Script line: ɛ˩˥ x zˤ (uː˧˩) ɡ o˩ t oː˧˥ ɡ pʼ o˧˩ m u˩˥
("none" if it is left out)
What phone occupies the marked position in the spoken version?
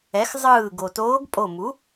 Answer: ɯː˧˩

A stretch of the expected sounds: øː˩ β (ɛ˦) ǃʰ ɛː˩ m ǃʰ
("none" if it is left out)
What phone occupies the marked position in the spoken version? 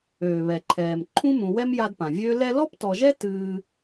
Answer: ɛ˩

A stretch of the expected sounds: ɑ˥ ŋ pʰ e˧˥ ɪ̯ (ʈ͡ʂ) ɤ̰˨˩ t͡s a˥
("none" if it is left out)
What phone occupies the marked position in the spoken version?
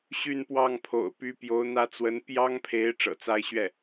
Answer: ʈ͡ʂ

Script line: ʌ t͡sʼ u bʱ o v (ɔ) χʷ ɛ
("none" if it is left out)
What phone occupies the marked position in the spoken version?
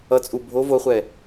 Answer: o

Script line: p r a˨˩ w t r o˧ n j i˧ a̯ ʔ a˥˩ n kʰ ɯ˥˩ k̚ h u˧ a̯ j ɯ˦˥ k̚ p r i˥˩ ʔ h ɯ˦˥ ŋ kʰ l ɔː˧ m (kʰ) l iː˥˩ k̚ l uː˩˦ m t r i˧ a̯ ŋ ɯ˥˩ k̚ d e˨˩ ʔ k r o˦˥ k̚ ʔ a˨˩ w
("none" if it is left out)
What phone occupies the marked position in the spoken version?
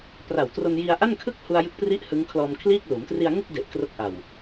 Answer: kʰ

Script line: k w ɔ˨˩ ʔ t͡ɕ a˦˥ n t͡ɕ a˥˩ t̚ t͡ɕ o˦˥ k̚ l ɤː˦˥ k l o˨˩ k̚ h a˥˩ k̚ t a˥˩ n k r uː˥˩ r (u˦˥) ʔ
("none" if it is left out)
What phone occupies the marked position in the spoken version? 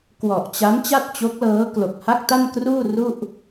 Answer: u˥˩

